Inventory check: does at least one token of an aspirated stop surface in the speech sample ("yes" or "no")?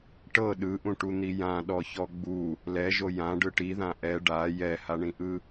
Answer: no